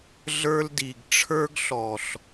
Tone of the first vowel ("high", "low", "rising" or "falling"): high